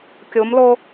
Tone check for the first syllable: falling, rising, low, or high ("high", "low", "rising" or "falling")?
rising